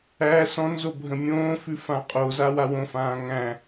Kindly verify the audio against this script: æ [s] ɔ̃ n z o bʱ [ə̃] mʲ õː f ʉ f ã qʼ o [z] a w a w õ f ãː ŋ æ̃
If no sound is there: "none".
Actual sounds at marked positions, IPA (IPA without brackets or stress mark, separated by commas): s, ə̃, z